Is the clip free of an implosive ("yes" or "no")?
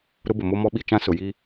no